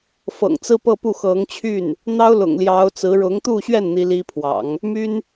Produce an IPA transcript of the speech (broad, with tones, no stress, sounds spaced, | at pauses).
f ɤ̰˨˩ ŋ t͡s ɹ̩˥ p ɤ˥˧ p u˥˩ x ɤ˧˥ ŋ t͡ɕʰ y˥˩ n | n̪ ɑ˥ ʊ̯ l ʊ̰˨˩ ŋ l j ɑ˧˥ ʊ̯ t͡s ɹ̩˧˥ ɻ ʊ˧˥ ŋ t̪ u˥˧ ɕ ɥ ɛ˥˩ n n̪ i˥ l i˥ pʰ w ɑ̰˨˩˦ ŋ | m y˥ n